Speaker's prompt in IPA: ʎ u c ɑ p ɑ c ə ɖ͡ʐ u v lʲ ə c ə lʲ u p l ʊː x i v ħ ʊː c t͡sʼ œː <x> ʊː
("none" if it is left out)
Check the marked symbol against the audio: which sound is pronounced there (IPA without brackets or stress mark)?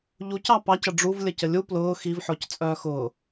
x